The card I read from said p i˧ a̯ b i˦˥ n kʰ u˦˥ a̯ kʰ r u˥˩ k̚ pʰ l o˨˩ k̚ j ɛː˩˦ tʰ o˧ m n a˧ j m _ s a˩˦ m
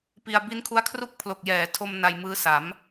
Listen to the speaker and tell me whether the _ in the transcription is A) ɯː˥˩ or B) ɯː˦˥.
B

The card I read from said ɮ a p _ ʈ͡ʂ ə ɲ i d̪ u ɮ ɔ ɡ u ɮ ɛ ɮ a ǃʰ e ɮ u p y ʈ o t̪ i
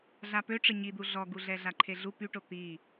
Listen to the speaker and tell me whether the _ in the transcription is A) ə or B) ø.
B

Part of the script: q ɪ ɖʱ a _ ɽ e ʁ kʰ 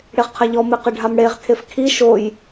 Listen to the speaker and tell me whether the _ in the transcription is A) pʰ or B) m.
B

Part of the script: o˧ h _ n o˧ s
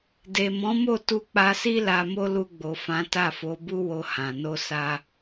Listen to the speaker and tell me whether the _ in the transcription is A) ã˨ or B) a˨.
A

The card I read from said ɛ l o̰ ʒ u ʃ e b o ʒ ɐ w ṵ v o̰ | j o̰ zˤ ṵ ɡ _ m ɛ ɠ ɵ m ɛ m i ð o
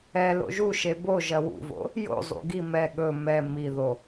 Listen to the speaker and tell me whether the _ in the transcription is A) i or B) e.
A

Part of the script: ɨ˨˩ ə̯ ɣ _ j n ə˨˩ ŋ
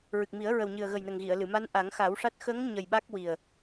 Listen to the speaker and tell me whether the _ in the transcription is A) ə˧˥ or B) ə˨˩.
B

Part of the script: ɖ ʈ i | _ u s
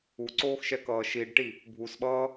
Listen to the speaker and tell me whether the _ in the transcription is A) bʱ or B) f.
A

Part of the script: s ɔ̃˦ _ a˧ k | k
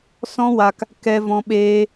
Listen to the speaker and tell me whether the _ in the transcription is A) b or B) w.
B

